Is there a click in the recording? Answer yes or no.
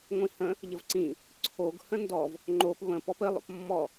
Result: yes